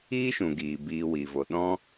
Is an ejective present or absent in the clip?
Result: absent